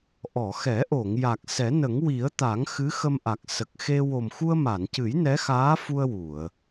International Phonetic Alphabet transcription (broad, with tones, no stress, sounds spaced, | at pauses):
ʔ ɔ˨˩˨ x ɛ˨˩˦ ʔ o˨˩˨ ŋ j a˨˩ k̚ s ɛ˨˩˦ n ə˨˩˦ ŋ w i˨˩˦ ə̯ t̪ a˨˩˦ ŋ x ɨ˧˥ x ə˧ m ʔ a˨˩ k̚ s ə˨˩ k̚ x e˧ w o˨˩ m x u˧ ə̯ m a˨˩˨ n c ɨ˨˩˦ j n ɛ˧˥ x aː˧˥ f u˧ ə̯ w u˨˩˨ ə̯